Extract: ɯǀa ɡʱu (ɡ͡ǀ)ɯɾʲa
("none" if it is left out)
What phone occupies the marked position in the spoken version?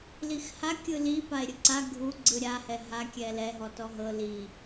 ɡ͡ǀ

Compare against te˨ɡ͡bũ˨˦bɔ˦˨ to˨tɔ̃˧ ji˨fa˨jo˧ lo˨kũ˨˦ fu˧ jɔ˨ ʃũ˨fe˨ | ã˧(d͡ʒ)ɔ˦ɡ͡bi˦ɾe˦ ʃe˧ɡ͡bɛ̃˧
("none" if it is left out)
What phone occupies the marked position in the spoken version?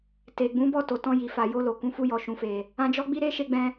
d͡ʒ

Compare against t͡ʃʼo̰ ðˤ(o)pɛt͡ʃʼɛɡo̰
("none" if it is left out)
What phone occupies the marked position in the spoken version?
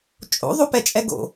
o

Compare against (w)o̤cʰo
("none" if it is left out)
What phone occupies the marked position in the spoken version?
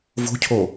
v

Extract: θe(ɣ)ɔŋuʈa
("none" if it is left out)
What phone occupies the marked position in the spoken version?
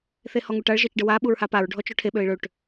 h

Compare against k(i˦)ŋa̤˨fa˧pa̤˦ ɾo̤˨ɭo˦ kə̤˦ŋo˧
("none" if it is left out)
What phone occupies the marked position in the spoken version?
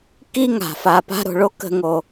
i˦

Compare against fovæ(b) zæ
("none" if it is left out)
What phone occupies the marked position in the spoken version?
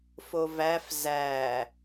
f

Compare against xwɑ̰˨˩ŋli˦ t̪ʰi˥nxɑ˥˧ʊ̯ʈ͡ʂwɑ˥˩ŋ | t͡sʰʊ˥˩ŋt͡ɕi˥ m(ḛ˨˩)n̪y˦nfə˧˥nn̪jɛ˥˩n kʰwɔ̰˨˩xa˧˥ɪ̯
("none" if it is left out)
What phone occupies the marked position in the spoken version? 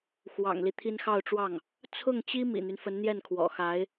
ḭ˨˩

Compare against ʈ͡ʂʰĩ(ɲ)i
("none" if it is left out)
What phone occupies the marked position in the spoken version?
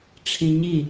ɲ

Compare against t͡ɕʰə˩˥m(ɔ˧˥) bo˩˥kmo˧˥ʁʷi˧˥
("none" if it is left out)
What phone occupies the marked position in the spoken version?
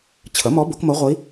ɔ˧˥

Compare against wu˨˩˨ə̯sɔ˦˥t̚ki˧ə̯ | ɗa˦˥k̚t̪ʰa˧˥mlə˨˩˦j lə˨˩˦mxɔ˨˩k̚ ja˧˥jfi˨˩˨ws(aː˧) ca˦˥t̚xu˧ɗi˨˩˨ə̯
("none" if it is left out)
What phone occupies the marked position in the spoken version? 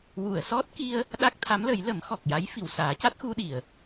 aː˨˩˦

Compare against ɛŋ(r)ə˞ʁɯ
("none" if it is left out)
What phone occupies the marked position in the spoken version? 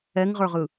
ʁ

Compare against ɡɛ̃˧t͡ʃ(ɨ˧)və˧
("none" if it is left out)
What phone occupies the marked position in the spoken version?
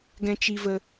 i˧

